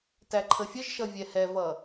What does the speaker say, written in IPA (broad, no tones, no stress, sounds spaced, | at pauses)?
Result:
t æ ǃʰ ə fʲ ə ʒ ʃ ʌ vʲ ɛ h ɛ v ʌ